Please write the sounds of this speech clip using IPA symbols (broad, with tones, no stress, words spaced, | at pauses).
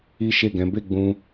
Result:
i˦ʃe˦˨ɡɛ̃˨˦ be˦˨ ɡ͡bũ˧